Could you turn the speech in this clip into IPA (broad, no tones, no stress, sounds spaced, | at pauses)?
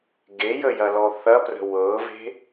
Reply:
ɡ e j ə j ɐ l ɔ θ ɐ p r ə̤ w ɤ v e̤